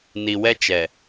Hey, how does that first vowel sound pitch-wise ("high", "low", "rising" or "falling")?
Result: low